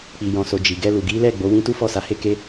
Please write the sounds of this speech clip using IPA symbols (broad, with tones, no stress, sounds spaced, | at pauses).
k͡p i˨ j ɔ̃˨ s o˨ d͡ʒ i˨ ɡ ɛ˧ l u˨ ɡ i˨˦ l ɛ˦˨ ɡ͡b o˨˦ w ĩ˦ t u˦ f ɔ˦˨ s a˨˦ h e˦ k e˦